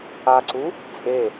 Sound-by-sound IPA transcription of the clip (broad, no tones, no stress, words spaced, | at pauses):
aǀu | t͡sʼe